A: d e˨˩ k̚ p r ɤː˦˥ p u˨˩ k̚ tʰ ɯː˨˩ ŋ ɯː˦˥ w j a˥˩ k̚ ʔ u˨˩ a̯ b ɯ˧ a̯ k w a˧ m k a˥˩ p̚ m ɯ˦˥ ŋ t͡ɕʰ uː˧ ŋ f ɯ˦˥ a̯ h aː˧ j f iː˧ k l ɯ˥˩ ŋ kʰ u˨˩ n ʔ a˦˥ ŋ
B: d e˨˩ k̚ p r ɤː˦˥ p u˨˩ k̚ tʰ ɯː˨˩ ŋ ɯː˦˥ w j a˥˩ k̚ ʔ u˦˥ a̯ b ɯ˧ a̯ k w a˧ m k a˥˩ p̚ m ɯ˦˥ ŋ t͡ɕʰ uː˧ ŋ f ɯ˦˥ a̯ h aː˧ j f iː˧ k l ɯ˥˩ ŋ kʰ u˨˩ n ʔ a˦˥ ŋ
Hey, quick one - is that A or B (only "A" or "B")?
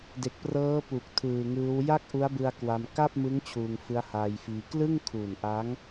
B